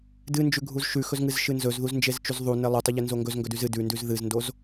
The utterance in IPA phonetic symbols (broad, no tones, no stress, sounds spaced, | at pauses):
d ɨ n d͡ʒ ʉ ɡʱ u z ʃ ʉ x ɵ z ŋ ɨ z ʃ ɨ n z ɵ z ð u z n d͡ʒ e z t͡ʃ ʉ z ðˤ u n e lˠ ɵ tˤ ɵ ʎ e n z o ŋ ɡ ɵ z ŋ ɡ ɵ d ʉ z ɨ d ʉ n d ʉ z ð ɨ z n d o z